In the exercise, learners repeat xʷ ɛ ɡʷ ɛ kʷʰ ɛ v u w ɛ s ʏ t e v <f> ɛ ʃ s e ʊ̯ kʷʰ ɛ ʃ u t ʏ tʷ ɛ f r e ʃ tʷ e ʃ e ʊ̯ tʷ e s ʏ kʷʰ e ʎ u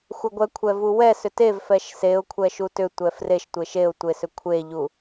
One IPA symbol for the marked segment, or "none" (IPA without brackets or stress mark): f